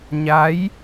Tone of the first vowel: rising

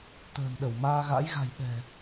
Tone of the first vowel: low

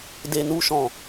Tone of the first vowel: low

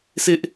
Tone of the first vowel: high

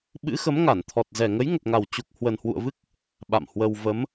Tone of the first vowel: rising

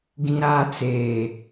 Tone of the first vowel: high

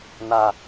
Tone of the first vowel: low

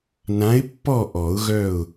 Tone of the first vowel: rising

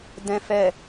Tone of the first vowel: low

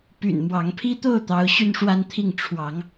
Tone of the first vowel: low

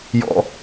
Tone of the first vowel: low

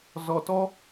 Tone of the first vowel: low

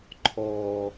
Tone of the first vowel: low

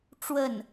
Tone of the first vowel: falling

